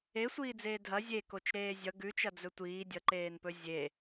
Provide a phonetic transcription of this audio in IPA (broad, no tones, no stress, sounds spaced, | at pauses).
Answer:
e sʷ iː d͡z eː dʱ ɐ zʲ e k o t͡ʃ ɾ eː zʲ ʌ ɡ ʉ t͡ʃ ɐ d͡z ɵ tʷ iː dʲ ʌ ǃ eː n p ɵ zʲ e